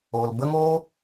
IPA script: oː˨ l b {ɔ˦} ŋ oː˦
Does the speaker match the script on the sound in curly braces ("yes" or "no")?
no